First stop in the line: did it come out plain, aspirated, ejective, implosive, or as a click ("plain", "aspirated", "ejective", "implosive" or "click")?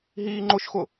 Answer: click